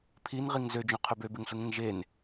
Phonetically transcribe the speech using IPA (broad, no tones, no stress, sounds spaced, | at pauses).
pʰ i n ʁ i ŋ z ø d͡ʒ õ qʰ ø b ø b e ŋ ɬ ɯ ŋ ẽ ŋ ʒ e n